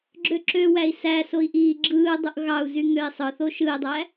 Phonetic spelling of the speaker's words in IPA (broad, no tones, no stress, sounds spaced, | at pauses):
ɡ͡ǁ ø ǁ ø w æ i̯ s æ s o i̯ ʔ iː ɡ͡ǁ ɯː dˤ u ʔ ɣ ɑ u̯ z y ŋ ø i̯ sˤ ɯ θ o ʃ ɯ i̯ dˤ æ